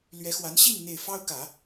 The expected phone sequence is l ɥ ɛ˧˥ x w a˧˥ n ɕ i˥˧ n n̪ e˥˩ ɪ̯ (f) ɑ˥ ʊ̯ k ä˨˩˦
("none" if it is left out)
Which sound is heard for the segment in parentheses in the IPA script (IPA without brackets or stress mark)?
f